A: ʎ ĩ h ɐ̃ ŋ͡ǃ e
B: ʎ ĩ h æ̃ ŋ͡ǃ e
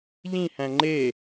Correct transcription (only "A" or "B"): B